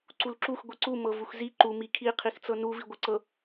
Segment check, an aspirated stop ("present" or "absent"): present